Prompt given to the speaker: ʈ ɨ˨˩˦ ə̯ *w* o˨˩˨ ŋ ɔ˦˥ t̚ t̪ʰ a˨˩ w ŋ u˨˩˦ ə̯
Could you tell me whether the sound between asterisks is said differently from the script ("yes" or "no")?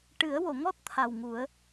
no